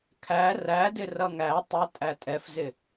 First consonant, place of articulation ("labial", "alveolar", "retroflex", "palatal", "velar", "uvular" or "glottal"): velar